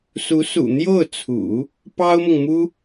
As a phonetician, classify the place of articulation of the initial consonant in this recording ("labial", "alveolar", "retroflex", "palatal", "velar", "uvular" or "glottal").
alveolar